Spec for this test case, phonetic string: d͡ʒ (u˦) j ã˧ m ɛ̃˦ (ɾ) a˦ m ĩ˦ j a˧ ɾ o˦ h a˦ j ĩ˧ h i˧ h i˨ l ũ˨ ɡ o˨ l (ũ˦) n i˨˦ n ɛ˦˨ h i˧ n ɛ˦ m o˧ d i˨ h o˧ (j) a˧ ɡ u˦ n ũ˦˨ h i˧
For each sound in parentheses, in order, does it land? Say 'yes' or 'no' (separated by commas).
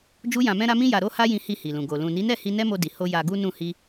yes, yes, no, yes